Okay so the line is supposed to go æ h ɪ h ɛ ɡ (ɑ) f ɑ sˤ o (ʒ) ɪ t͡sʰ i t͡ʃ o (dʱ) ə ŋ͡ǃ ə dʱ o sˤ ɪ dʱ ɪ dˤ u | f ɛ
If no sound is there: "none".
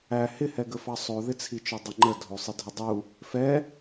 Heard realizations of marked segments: ə, ð, dˤ

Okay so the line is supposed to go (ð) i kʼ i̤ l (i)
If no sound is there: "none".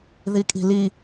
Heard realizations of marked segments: ð, i

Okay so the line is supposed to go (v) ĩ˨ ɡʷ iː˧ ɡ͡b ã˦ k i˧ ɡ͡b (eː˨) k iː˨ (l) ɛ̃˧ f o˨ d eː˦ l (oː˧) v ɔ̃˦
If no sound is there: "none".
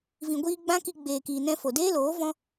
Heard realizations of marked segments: v, eː˨, n, oː˨˦

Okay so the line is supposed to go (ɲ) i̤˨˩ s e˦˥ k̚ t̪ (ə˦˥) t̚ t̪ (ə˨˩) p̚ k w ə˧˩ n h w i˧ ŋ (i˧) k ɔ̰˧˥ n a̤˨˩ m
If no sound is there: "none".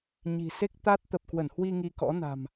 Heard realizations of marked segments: ɲ, a˦˥, ə˨˩, i˧

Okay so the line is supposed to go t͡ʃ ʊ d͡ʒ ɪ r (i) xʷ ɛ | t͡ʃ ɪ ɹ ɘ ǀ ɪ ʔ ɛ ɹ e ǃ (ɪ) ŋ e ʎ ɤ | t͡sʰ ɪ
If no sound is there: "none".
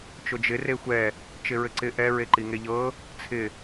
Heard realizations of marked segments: e, i

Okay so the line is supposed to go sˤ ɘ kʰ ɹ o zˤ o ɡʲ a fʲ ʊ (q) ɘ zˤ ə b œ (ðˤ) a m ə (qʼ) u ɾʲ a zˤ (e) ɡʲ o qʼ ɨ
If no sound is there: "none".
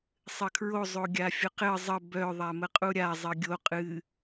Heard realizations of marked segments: q, ðˤ, qʼ, ɘ

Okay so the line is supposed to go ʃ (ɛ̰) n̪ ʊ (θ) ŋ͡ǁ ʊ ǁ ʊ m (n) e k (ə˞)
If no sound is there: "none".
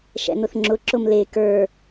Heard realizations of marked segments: ɛ̰, θ, l, ə˞

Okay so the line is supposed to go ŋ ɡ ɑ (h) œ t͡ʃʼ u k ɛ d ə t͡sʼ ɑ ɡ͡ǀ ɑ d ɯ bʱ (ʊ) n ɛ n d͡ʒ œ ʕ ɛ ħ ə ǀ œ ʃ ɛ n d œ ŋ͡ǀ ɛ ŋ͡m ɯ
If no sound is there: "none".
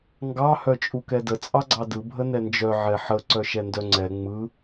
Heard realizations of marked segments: h, ə

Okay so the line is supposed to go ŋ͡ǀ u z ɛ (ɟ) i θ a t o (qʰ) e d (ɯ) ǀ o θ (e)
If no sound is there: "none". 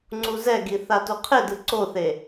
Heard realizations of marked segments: ɡ, qʰ, ɯ, e

